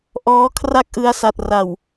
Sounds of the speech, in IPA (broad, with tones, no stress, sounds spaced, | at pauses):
ʔ ɔː˦˥ kʰ r a˥˩ k̚ ʔ ɯ˧ a̯ s a˨˩ t̚ r a˨˩ w